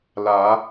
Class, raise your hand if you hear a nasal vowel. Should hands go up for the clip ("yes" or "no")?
no